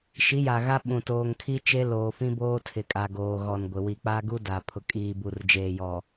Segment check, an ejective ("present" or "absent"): present